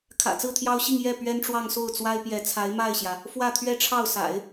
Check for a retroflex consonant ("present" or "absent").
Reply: present